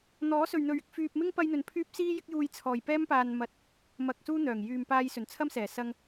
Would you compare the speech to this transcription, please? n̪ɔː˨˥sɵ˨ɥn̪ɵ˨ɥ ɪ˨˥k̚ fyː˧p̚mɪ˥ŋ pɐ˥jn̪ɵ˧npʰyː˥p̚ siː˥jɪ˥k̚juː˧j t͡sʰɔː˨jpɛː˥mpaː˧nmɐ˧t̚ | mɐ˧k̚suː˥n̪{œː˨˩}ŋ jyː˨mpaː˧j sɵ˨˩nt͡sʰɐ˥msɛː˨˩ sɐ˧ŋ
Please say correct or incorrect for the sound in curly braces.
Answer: correct